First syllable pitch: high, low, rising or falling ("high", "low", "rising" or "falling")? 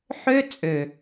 high